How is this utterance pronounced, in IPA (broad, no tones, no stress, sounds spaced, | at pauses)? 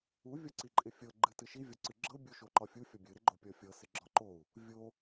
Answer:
u vʲ ɒ ǀ i ǃʼ ɪ fʲ ɤ ɡ͡ǃ ɨ t ɨ ʃ i vʲ ɒ ǀ ɨ ɡ͡ǁ ɤ bʲ u ʃ o ǃ ɒ fʲ u fʲ ɔ bʲ ɨ ɾ ɪ ɡ͡ǃ o pʲ ɔ fʲ ɤ s ɪ ɡ͡ǁ ɒ ǃ o u̯ | vʲ o